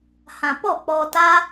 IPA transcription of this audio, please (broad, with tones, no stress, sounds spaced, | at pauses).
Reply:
h ã˨ p ɔ˦˨ k͡p ɔ˧ t a˦